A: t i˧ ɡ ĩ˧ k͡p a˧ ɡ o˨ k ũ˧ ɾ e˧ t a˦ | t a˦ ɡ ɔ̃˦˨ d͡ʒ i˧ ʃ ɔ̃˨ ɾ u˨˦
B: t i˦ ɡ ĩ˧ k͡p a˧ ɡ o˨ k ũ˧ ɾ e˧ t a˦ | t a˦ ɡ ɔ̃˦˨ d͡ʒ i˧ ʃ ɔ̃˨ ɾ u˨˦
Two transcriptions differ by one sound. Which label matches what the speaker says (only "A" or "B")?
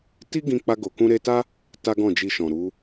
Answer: B